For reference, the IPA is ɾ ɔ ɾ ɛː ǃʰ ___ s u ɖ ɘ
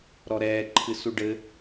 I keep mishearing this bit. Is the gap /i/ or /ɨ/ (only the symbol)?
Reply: ɨ